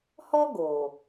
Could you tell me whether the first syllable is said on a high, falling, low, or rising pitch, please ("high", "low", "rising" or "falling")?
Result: high